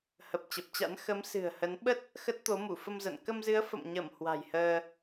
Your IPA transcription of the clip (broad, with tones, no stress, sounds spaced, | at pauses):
h ə˨˩ p̚ t͡ɕ ə˨˩ p̚ t͡ɕ a̰˧˥ n x ə˨˦ m s ɨ̤˨˩ ə̯ h ə˨˦ n ɓ ə˦˥ t̚ | x ə˦˥ t̚ t̪ o˨˦ m u˧˩ f ə˧ m z ə̰˧˨ n k ə˧ m z ɨ˨˦ ə̯ f ə̰˧˨ m ɲ ə˧˩ m h w a̤˨˩ j h əː˧